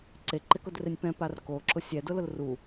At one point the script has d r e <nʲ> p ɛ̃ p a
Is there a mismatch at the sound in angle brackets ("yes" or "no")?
no